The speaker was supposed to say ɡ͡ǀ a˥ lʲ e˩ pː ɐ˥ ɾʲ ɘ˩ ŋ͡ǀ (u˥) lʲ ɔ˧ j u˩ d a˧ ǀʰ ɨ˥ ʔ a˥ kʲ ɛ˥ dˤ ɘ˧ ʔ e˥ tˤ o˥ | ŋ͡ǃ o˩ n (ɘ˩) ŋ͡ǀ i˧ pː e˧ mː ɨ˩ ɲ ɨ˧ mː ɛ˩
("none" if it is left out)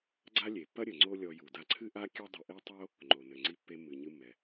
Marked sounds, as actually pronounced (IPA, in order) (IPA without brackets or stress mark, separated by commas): o˥, ɘ˩